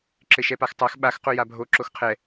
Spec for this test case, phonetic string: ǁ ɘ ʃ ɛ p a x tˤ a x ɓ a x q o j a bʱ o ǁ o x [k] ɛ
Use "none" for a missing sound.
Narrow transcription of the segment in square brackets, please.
qʰ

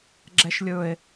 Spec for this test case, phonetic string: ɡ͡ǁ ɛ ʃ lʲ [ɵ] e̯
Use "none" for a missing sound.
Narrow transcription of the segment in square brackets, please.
ɵ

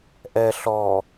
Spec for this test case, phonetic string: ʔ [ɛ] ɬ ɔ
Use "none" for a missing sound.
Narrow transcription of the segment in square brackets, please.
ɛ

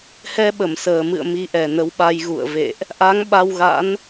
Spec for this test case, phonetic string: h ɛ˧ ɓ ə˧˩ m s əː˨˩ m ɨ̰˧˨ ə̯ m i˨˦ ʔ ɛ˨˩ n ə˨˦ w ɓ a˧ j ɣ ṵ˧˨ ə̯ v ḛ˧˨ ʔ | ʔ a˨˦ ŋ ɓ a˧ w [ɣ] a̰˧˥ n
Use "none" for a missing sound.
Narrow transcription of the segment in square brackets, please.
ɣ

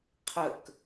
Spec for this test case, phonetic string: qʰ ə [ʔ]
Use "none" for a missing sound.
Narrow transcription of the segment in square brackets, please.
k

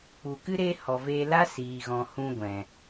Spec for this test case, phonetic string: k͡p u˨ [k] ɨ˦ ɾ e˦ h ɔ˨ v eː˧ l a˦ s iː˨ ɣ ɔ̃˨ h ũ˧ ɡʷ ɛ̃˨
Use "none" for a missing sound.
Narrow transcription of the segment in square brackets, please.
k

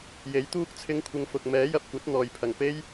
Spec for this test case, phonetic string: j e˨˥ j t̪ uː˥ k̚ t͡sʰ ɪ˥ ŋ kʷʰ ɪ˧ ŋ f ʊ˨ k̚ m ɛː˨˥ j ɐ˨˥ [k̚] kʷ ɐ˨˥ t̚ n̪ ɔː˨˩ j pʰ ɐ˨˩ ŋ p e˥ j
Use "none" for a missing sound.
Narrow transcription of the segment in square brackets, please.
p̚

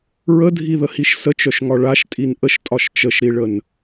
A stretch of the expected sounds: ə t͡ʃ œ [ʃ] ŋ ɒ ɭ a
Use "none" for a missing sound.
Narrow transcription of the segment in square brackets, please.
ʃ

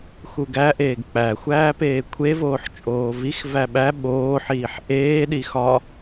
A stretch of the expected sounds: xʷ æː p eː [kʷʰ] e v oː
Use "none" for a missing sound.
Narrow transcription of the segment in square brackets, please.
kʷʰ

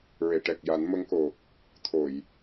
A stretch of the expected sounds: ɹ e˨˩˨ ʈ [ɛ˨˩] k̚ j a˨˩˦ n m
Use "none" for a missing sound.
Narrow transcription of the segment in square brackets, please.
ɛ˨˩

